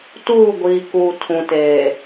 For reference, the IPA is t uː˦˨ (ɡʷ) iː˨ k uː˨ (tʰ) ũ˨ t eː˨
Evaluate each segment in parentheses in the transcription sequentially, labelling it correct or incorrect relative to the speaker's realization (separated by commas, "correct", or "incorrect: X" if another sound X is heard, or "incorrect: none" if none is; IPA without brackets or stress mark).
correct, correct